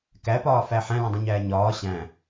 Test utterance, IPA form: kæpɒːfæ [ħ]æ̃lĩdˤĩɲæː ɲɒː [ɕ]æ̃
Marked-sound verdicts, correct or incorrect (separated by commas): correct, correct